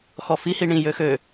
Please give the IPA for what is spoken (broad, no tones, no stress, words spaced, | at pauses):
xɔfi hiɳĩ jøxø